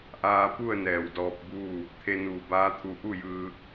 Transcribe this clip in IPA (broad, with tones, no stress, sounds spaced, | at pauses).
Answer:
ʔ aː˧ p u˥˨ ə̯ n ɛː˧˩ w d ɔː˧ p̚ b uː˥˨ | t̪ʰ e˧ n uː˧˩ b aː˧˥ t̪ʰ u˧ ʔ u˥˨ j ɯː˧